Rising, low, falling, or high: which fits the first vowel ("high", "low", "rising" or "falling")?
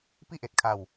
falling